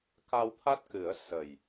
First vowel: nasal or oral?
oral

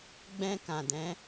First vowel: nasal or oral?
nasal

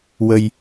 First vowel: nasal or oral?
oral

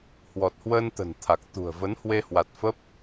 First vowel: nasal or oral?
oral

